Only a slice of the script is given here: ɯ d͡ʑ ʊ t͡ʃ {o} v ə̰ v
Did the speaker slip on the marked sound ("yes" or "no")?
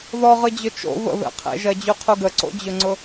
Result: yes